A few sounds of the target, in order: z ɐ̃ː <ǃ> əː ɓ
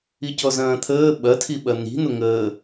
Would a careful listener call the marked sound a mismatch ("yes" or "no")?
yes